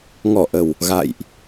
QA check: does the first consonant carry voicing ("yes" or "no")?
yes